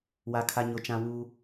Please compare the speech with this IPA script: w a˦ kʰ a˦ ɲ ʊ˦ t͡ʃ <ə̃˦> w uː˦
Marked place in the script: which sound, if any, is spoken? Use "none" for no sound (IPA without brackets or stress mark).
ã˦